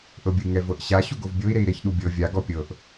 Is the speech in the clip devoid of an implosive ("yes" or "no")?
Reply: no